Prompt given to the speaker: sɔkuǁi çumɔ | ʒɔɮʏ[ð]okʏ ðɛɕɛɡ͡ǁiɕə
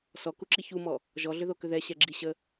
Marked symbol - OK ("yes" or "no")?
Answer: yes